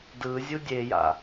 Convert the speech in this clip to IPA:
d ɯ zʲ u dʲ e j a̰

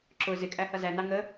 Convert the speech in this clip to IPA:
ǁ ʊ z ɪ kʼ æ h ʌ z æ n ɑ ŋ ə

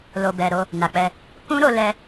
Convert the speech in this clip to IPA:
l o˨ b ɛ˨ ɾ o˧ | n a˨ k͡p ɛ˧ | k ũ˦ ɾ o˧ l ɛ˧

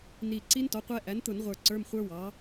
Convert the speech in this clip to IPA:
n i˨˩ ǀ i˦˥ n t ɔ˩˥ qʷ ɛ˦˥ ʔ æ˩˥ n t̪ ʊ˧˩˧ n ʁʷ ə˞˨˩ ǀ ə˞˧˥˧ m χʷ ə˞˦˥ w ɑ˩˥

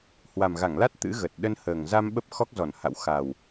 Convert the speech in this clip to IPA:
h w a˨˩ m ɣ a˧˩ ŋ l a˦˥ t̚ t̪ ɨ̰˧˥ ɣ ə˨˩ t̚ ɗ ə˧ n h əː˨˩ ŋ z a˧ m ɓ ə˦˥ p̚ x ɔ˦˥ k̚ z ɔ˧˩ n h a̰˧˨ w x a˨˩ w

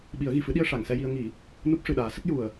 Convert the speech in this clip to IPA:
ɓ i˨˩˦ ə̯ ɣ i˨˩ f ɨ˧˥ ɗ i˧ ə̯ ʂ a˨˩˨ ŋ s ɛ˧ j i˧ ə̯ ŋ i˨˩˦ | n u˦˥ p̚ ʂ ɨ˨˩ ɗ aː˨˩˦ s ə˦˥ k̚ j u˨˩ ə̯

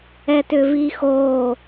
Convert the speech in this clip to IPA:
ɛ t ʏ v i x o

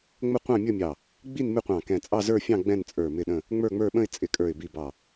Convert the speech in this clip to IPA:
ŋ͡m ə˥˧ qʷ ɑ̃˥˧ mʲ ə˥˧ mʲ ɑ˧˩ | ɡ͡b i˥˧ n m ɪ˥˧ qʷ ɑ̃˧˩ k ɛ̃˧˩ t͡sʼ ɑ˥˧ z ə˞˥˧ fʲ ɑ̃˥˧ ɡ͡b ɛ̃˥˧ n t͡sʼ ə˞˧˩ m ɪ˥˧ ɗ ə̃˥˧ | ŋ͡m ə˞˥˧ ŋ͡m ə˞˥˧ ɓ ə̃˥˧ ɪ̯ t͡sʼ ɪ˧˩ kʼ ə˞˧˩ ɪ̯ b i˧˩ b ɑ˧˩

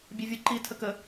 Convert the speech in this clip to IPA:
bʲ e vʲ u ǃ i tʰ ə k ə

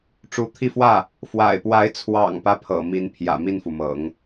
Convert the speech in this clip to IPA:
ʈ͡ʂ u˧˥ t̪ʰ i˥˧ f w ä˥˩ | f w a̰˨˩ ɪ̯ p w a˧˥ ɪ̯ t͡sʰ w ɑ̰˨˩ ŋ p ä˦ pʰ ɤ̰˨˩ m i˧˥ n pʰ j ä̰˨˩ m i˥˩ n f u˩ m ɤ̰˨˩˦ ŋ

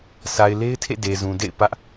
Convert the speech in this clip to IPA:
sʰ a˨ ɪ̯ l e˦ ɪ̯ tʰ ḛ˦˨ d e˨ z ũ˨ d ḛ˦˨ ɪ̯ p ä˦ ʔ

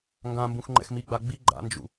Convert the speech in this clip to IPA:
ŋ ɡ ã m b ũ x ŋ͡ǃ ɛ̰ x m i ɡ͡b a ɡ͡b i ɡ͡ǃ a̰ n d͡ʒ ṵ

